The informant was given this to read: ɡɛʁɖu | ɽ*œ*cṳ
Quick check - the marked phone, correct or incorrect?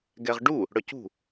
correct